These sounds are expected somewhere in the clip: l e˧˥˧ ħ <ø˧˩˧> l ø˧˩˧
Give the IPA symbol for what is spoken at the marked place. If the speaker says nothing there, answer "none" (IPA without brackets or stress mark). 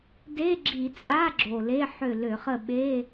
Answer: ø˦˨